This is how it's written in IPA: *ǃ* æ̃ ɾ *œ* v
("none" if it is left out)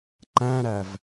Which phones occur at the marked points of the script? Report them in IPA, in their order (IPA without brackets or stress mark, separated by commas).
ǃ, æ